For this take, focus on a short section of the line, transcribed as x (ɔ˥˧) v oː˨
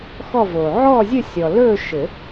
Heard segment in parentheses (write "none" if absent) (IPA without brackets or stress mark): ɔ˥˧